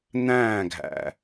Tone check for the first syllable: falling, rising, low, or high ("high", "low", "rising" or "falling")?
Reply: falling